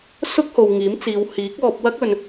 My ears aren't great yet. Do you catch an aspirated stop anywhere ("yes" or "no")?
no